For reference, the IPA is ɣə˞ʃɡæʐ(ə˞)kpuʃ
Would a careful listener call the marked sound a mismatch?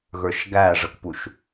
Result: yes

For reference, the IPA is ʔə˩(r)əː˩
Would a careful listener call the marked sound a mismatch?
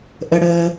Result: yes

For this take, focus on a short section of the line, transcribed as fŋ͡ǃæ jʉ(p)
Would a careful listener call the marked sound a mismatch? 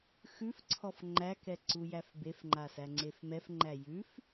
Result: yes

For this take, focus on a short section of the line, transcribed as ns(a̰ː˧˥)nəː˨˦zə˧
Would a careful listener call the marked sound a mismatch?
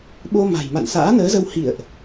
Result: no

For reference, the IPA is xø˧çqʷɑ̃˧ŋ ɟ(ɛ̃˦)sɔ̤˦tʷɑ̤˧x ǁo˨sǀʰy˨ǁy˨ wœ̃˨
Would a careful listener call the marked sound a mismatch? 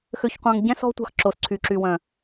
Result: no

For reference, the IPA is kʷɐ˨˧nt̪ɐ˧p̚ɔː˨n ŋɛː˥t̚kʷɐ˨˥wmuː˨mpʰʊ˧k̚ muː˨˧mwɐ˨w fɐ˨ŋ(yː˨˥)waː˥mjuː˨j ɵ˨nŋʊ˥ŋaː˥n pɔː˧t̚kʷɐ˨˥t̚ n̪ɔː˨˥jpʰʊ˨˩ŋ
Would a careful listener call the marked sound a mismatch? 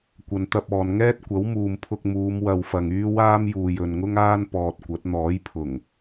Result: yes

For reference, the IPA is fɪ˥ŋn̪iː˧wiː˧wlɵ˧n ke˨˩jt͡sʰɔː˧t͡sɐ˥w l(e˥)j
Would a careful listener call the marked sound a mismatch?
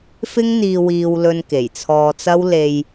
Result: yes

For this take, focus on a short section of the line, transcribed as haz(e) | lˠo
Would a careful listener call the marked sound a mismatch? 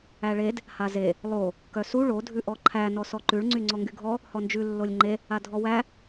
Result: no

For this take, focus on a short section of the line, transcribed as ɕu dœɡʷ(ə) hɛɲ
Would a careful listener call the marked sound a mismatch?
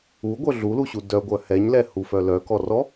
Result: yes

